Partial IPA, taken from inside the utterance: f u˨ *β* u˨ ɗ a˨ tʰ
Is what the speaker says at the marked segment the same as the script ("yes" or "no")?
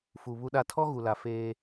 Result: yes